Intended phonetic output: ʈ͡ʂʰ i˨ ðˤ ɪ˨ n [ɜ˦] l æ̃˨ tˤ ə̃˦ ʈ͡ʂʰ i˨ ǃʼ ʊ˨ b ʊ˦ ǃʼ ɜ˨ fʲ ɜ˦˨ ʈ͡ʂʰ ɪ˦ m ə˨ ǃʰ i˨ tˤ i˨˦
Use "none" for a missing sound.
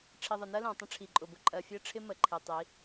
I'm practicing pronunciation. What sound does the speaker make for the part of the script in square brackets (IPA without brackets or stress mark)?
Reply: ɜ˦